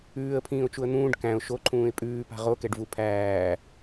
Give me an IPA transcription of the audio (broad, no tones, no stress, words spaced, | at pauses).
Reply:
ʉːə̯pʰĩːʊ̯t͡ʃuə̯ n̪ũːɖ kæ̃ʊ̯ ʃoǃʰũːɪ̯ pʼʉːpa̤ ʁokɛɖvu pʰæː